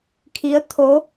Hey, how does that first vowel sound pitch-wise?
rising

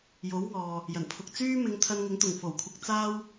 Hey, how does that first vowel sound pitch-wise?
rising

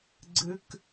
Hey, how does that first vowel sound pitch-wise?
high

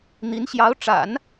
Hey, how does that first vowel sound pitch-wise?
rising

